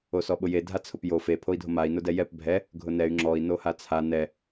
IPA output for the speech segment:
o s ɔ ɓ ʊ j e dʱ a t͡sʰ ʊ p j o f e pʰ o i̯ dʱ o m a i̯ n ʊ d ɛ j ɛ p bʱ ɛ | ɡʱ ʊ n ɛ y̯ ŋ͡ǁ ɔ i̯ n o h a t͡sʰ a n ɛ

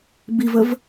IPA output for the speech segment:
b i v ə v

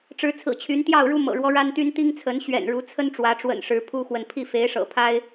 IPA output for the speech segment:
ʈ͡ʂ ɻ̩˨˦ t͡sʰ ɹ̩˨˩ t͡ɕʰ y˨˦ n t̪ j ɑ˥˨ ʊ̯ ɻ u˦ m ɤ̰˨˩ ɻ w ɔ˦ ɻ a˦ n t̪ y˦ n t̪ i˦ ŋ t͡sʰ ə˨˦ n ɕ ɥ ɛ̰˨˩ n ɻ u˨˦ t͡sʰ ə˦ n ʈ͡ʂ w ä˨˦ ʈ͡ʂ w ə̰˨˩ n ʂ ɻ̩˨˦ pʰ u˦ x w ə˨ n pʰ i˥˨ f e˨˦ ɪ̯ ʂ ɤ̰˨˩ pʰ a˦ ɪ̯

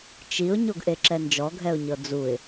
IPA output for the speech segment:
t͡ʃ i ʊ̯ ɲ o ɡ ʔ e ǁ ɛ n d͡ʒ ɔ ɡʱ ɛ ʊ̯ ɲ ɤ d͡z u ɪ̯

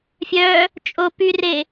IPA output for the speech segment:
fʲ œ | t͡ʃʼ o p y r e

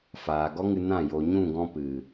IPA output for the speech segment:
f aː˨ ɡ ɔ˦ ŋ ɨ˧ n ã˦˨ j o˨ ɲ ũ˦˨ ɡ ɔ̃˧ p ɨ˨

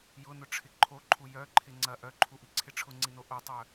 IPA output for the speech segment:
j ʊ n ʊ ʈ͡ʂʰ ɪ ǃʰ o ǃʰ u j œ ǃʰ ɪ ŋ͡ǀ ɐ ʔ œ ǃʰ u ʔ i ǀʰ ɪ ʈ͡ʂʰ ʊ ŋ͡ǀ i n o ʔ o tˤ œ

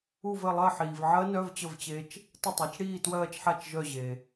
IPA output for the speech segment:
u˦˨ v ɘ˦˨ lˠ ɜ˦˨ ħ iː˨ v ʕ ɜ˦˥ n œ˧˥˧ v t͡ɕ ə˦˨ v t͡ɕ e˦˥ t͡ʃ | t ə˦˨ tˤ ɜ˩˥ t͡ʃ ɽ iː˦˨ t w ɜː˦˨ t͡ʃ ħ a˦˨ t͡ʃ ʒ œ˦˨ ʑ e˨

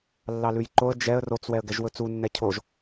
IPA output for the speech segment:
lː ɑ l ʉ j ǃ o ə̯ d͡ʒ ɛ ə̯ r o t͡s w ɛ ə̯ ɡ ɛ ʒ w ɵ t͡s u nː ɛ cʰ o ʒ

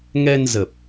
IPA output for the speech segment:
ŋ ɛ˧ n z ə˨˩ p̚

